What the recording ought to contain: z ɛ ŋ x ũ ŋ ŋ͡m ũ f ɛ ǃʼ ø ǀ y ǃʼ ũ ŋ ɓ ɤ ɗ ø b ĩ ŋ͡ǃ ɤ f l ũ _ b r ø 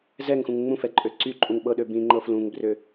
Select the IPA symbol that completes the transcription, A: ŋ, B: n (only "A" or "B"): A